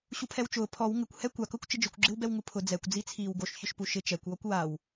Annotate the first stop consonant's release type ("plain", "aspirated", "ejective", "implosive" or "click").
aspirated